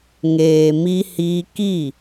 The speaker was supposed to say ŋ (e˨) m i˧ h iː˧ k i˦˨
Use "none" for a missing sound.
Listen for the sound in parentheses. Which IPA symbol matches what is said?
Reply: eː˨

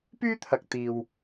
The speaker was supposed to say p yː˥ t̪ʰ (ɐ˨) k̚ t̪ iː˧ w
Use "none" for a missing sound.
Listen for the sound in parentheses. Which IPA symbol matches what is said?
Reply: ɐ˨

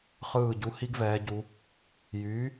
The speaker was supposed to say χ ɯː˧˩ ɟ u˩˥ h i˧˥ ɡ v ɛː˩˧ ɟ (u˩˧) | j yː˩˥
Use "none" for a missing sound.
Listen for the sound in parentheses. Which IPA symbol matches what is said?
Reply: u˩˧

